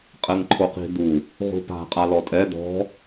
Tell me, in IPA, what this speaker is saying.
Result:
qʼ ɛ ŋ ǃʰ o q i̤ d̪ u | ʁ ṳ p a̤ qʼ a l ɔ tʼ ɛ d̪ ɔ̤

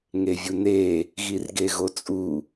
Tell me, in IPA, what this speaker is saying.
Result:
ŋ e vʲ u n e | ɣ i r ɡ e ɣ o t͡sʼ u

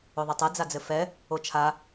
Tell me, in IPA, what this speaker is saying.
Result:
o ðˤ ɘ tˤ ɛ d͡z a d͡z ɘ f ɛ | o t͡ʃʰ a

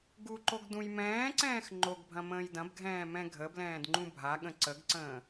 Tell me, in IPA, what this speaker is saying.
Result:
ɡ u ǃ o ɡ d ũ j m ɛ̃ː ǀ ɛ̃ː x ŋ͡ǃ o ɡ bʱ ɐ̃ m ə̃ː j d ɐ̃ b ɡʱ ɛ̃ː m ɛ̃ ɡʱ ə b l ɛ̃ː d ŋ͡ǃ ũ bʱ a ɠ ə̃ ǀ ə ɡ ǀ ə̃ː

